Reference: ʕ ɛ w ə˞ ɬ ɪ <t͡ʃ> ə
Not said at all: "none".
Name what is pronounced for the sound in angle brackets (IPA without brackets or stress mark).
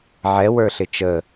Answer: t͡ʃ